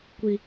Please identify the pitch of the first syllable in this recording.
high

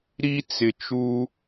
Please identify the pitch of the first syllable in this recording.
high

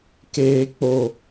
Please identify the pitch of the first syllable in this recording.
low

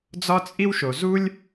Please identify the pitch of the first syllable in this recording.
high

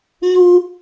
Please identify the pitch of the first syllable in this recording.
high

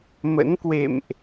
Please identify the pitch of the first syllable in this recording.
rising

